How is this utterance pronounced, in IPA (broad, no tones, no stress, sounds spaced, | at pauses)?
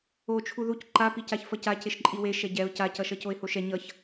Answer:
o t͡ʃʰ u ð u c ǃ a p i c a ç f ʌ c a c e ʃ ǃʼ i w e ʃ ɛ ɟ ɛ ʊ̯ c a c ʌ ʃ ʌ c o ɪ̯ h o ʃ ɛ ɲ ʌ ç